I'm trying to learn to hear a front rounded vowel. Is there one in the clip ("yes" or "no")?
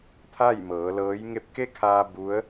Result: no